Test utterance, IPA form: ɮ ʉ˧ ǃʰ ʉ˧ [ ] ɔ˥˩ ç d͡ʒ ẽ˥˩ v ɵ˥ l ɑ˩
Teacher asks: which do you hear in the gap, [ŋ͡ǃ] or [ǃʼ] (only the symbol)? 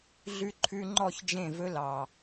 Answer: ŋ͡ǃ